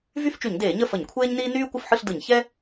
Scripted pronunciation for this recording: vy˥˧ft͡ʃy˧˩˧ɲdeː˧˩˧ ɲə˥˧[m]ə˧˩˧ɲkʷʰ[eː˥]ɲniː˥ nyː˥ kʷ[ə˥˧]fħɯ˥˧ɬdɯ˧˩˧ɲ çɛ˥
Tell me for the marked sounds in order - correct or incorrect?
incorrect: f, correct, correct

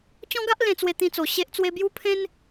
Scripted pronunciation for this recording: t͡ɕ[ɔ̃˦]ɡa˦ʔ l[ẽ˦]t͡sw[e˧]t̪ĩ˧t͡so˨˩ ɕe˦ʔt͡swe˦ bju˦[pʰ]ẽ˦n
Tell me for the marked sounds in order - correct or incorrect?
correct, incorrect: ẽ˧, correct, correct

